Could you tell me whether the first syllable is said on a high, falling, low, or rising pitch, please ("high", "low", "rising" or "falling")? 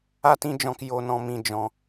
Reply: high